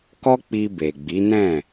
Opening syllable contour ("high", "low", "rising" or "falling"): high